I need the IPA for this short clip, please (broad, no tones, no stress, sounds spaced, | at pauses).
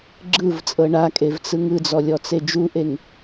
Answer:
ɡ͡ǁ ɯ v t͡sʼ ɤ ɳ a kʼ e v t͡s ɯ ŋ ɯ d͡z ɔ lʲ ɔ t͡s e d͡ʒ u ʔ e ŋ